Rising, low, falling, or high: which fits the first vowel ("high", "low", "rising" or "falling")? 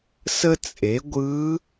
high